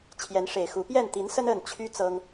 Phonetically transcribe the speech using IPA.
t͡ɕʰ j ɛ˨˦ n ʂ e˨˩ ɪ̯ x u˨˦ p j ɛ˥˨ n t̪ i˨˦ n s ə˦ n ə˥˨ n t͡ɕʰ y˦ t͡s ɤ˦ ŋ

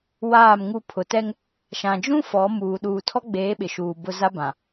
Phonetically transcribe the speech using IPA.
w aː˦˨ m ŋ u˦ pʰ ʊ˨ t ɛ˦ ŋ | ʃ ã˨ d͡ʒ ũ˦ f ɔ˨˦ m uː˨ ɗ uː˨ tʰ ɔ˦ ɡ͡b eː˨˦ ɓ ɪ˨ ʃ uː˨ b ʊ˦ z a˦ b ã˨

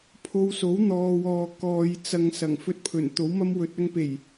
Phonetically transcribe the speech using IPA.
pʰ o˧ w s o˨˥ w n̪ ɔː˨ w ɔː˨ k ɔː˨ j t͡s ɐ˨ ŋ s ɐ˨˩ ŋ f ɵ˧ t̚ pʰ ɵ˨˩ n t̪ o˨˥ w m ɐ˥ m w ɵ˧ t̚ ɐ˧ ŋ p e˨˩ j

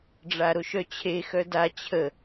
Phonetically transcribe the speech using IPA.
ɖ͡ʐ a ɾ o ʃ œ t͡ɕʰ e x œ d a t͡ɕʰ ə

